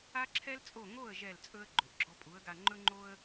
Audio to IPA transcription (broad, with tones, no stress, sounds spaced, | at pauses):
a˥ ǁʰ ɛ˥ l t͡sʼ o˥˩ ŋ o˥˩ ə̯ ʒ ɛ˥˩ l t͡sʼ ɵ˥ ə̯ ɡ͡ǃ ʏ˩ ʔ ɡ͡ǁ ɔ˧ pʼ u˩˥ ə̯ ɡ a˧ ŋ͡ǃ ɵ˥ ŋ͡ǃ o˥ ə̯